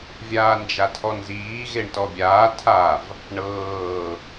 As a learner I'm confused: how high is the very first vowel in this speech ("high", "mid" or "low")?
low